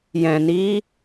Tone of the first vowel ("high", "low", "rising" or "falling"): low